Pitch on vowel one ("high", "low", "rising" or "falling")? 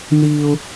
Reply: high